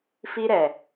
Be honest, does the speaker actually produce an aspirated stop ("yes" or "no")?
no